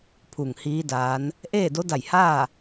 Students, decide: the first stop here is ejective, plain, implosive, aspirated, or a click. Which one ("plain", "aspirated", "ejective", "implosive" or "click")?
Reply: aspirated